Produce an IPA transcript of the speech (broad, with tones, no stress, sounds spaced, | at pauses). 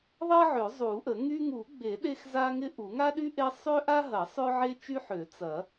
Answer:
ðˤ ɐ˥ ʕ ø˨˩˦ zˤ u˨˩˦ ʔ ə˨˩˦ ŋ y˥ ŋ u˨˩˦ ɡ͡b e˨˩˦ ɗ e˥ x z a˥ ŋ ɪ˥ ʔ u˨˩˦ ŋ a˥ ɗ y˥ ʔ e˥ sˤ ø˥ ʔ a˥ ɦ ɐ˨˩˦ sˤ ø˥ ʕ e˥ t͡ʃ y˥ ħ ø˨˩˦ t͡s ɐ˨˩˦